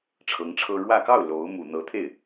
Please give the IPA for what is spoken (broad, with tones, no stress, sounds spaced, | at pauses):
ʈ͡ʂʰ ɤ˧˥ ŋ ʈ͡ʂʰ ɤ˥ ɻ w ä˥˧ k ɑ˥˩ ʊ̯ l o˧˥ ʊ̯ m u˨˩ n̪ ɤ˧˥ t̪ʰ e˥˩ ɪ̯